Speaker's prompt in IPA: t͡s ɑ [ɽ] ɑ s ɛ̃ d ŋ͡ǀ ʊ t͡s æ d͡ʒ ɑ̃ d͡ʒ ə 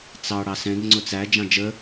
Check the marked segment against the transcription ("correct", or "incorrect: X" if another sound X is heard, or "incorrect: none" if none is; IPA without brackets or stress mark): correct